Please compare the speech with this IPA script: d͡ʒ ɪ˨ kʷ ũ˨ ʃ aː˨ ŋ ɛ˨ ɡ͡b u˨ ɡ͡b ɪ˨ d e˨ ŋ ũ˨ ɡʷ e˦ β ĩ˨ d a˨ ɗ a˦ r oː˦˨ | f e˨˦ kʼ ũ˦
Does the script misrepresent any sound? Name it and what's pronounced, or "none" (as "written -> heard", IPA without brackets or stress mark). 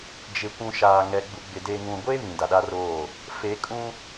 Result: none